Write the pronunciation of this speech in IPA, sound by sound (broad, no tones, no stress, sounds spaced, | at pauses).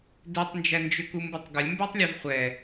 d ɛ tˤ n d͡ʒ æ n d͡ʒ ʏ k u m b u tˤ ɡ ɐ lʲ m b æ tˤ lʲ a v χʷ ɛ